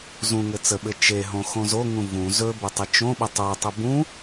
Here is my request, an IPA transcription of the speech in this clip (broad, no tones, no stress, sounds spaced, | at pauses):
z ũ ŋ ɘ t͡s ə ɓ ɘ t͡ʃ e ɦ õ x õ z o ŋ ũ v ũ z ɵ b ɘ tˤ ə t͡ʃ õ ɓ ə tˤ o tˤ ɘ b ũ